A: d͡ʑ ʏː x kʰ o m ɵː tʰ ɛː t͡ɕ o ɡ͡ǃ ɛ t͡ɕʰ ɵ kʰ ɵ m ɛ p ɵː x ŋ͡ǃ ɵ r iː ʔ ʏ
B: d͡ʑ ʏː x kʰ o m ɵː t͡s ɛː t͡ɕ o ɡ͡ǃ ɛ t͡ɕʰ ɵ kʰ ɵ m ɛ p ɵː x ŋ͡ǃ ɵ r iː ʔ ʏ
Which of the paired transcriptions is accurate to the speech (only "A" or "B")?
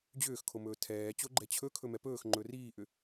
A